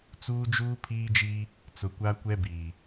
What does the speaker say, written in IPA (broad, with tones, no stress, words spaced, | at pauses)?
t͡suː˦d͡ʒuː˦pʰiː˦d͡ʒiː˦ | t͡sʊ˨kʷa˦kʷɛ˦biː˨